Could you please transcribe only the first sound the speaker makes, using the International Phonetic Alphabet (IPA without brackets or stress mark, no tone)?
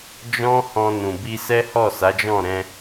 d͡ʒ